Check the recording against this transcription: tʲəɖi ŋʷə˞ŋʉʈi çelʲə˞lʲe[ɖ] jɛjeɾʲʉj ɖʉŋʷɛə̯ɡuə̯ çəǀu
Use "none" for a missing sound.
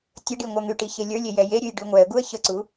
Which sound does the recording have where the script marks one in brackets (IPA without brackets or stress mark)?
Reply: none